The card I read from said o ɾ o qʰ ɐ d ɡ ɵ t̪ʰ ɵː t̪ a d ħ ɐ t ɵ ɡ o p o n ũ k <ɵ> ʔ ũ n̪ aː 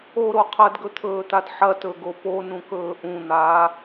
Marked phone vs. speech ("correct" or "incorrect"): incorrect